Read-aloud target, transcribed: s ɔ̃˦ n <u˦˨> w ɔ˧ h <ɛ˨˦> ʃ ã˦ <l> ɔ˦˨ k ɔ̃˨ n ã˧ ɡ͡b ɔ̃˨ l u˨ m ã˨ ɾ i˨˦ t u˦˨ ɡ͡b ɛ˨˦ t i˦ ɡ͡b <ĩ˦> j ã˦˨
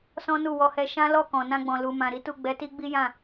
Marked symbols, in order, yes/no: yes, no, yes, no

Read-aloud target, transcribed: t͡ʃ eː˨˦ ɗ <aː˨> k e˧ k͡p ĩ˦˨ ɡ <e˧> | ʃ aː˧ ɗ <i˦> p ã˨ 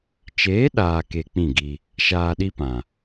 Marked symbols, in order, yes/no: yes, no, yes

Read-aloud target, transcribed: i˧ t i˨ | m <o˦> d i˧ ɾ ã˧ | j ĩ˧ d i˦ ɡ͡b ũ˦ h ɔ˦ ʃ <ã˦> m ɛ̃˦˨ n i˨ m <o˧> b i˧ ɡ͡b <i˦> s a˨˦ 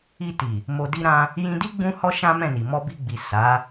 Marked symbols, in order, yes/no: no, yes, no, no

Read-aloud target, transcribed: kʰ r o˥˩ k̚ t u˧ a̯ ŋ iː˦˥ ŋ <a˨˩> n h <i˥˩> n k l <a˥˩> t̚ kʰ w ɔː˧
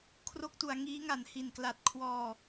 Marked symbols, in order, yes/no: yes, no, no

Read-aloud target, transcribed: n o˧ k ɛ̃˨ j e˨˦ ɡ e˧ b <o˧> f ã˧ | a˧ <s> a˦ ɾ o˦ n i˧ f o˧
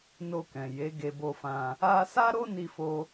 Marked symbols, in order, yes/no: yes, yes

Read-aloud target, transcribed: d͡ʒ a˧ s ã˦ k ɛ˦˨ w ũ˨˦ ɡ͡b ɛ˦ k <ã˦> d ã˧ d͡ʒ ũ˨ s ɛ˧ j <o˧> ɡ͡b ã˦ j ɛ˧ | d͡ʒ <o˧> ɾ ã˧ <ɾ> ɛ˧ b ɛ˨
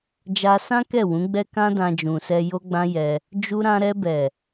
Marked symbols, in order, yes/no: yes, no, no, yes

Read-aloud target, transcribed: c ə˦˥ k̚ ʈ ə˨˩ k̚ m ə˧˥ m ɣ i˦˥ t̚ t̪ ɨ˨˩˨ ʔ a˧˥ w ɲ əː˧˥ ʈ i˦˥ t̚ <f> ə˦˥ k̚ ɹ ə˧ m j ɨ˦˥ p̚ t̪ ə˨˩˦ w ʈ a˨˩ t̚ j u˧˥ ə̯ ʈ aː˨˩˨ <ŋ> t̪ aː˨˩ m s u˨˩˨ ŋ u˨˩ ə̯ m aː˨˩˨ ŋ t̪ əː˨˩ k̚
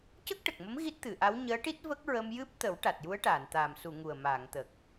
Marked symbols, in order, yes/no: no, no

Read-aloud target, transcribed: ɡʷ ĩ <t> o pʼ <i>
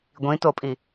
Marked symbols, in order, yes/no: yes, yes

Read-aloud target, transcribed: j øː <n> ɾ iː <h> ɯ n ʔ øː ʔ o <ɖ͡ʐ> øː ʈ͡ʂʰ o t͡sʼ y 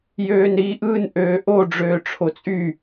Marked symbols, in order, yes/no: yes, no, yes

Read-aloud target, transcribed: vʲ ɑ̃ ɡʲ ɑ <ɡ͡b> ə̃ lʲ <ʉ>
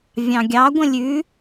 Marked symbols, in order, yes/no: no, yes

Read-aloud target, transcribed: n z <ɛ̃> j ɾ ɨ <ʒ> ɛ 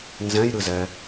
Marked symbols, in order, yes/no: yes, no

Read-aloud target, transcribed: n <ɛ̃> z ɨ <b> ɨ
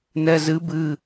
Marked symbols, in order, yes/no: no, yes

